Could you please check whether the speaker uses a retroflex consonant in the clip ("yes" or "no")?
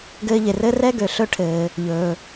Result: yes